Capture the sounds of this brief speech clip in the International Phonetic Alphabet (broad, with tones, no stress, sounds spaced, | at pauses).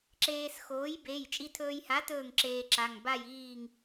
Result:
ǁ eː˧ s x oː˨˥ j b e˩˧˩ j t͡ʃʼ i˧ tʰ ɵː˧ j h a˨˥ t ɵː˥˨ ŋ ǁ eː˧ ǁ a˩˧˩ ŋ b a˥˨ j iː˥˨ ŋ